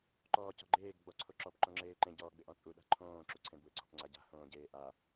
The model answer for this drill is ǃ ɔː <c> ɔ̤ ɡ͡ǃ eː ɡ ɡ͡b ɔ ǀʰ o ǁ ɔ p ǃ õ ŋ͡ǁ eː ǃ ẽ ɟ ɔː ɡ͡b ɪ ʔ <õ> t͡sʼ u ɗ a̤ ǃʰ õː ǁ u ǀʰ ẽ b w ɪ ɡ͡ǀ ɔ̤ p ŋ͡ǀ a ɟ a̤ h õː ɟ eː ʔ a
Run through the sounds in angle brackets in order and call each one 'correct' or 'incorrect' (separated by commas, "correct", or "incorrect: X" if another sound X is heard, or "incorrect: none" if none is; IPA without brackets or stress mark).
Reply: correct, incorrect: ɔ̃